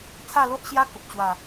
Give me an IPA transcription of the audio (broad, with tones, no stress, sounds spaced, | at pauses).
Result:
t͡sʰ a˥˧ l o˦ ʔ ɕ j a˦ k ə˨ p̚ t͡ɕ w a˨˩